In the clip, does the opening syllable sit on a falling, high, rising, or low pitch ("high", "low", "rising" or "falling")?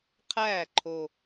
falling